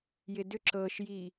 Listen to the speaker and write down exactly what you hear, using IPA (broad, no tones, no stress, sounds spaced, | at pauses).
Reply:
j ɪ d ʏ ǁ ɤ ʃ j i